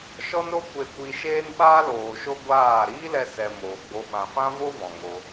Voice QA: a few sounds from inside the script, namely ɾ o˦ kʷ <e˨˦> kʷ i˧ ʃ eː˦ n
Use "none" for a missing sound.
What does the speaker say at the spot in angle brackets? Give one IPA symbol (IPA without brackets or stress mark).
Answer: e˧